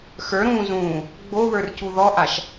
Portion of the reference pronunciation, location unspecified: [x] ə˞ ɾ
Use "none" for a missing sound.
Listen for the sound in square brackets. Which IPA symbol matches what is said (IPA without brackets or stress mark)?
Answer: x